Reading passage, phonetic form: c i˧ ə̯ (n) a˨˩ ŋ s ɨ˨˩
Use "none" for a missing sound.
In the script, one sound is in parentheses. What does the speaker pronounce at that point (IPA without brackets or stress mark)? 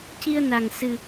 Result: n